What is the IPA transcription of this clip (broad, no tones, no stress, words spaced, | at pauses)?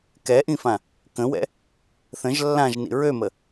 kɛʔĩfã | kə̃wɛ̰ | θə̃ʒ lːãʒnḭ ɹømə